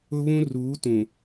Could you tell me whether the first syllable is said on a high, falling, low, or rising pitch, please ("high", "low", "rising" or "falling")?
high